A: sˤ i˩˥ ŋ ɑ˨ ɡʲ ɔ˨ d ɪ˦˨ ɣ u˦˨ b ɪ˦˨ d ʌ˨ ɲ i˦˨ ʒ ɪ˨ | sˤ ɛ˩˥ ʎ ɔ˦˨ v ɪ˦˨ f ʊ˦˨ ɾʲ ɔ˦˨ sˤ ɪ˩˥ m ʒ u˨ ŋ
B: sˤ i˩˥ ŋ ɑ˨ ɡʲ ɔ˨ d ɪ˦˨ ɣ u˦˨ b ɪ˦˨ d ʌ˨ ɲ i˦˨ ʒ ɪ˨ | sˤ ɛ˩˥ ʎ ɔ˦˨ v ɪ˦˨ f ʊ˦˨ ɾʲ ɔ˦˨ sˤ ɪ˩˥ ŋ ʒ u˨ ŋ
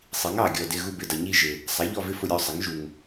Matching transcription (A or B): B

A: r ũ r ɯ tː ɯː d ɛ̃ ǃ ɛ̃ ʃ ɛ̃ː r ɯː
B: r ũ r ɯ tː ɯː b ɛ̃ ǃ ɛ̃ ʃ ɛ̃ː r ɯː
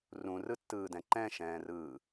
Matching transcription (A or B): A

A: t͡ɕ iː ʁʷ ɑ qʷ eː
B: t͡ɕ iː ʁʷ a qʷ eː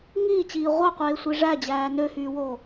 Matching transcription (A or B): A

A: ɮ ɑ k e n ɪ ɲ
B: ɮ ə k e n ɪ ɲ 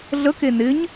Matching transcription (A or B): B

